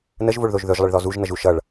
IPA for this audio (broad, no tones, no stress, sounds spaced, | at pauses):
n ə ʒ v o ɭ ð o ʒ ð ɵ ʒ lˠ ə ɭ ð ɔ z u ʒ n ʌ ʒ u ʃ ʌ ɭ